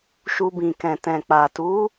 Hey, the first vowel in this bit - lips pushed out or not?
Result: yes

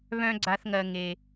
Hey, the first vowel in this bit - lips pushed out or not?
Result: yes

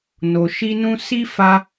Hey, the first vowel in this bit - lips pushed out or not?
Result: yes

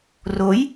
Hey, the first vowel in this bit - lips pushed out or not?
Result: yes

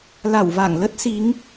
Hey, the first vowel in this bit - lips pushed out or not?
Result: no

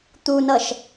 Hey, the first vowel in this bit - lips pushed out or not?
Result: yes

